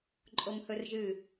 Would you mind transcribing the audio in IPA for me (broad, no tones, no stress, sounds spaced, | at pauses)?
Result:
ǃʼ o m h ɵ r ʒ ɨ